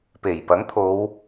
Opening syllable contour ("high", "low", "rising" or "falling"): low